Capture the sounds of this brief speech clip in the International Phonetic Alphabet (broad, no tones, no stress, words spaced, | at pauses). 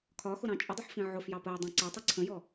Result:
kʰɒxʊɾɑ̃ t͡ʃʼədˤʊħfĩ ʕʊfjɑ pɜe̯dˤɑ̃ ǀætˤi ǀʰə̃jɔ